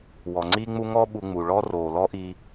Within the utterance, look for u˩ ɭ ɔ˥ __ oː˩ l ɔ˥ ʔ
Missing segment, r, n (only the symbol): r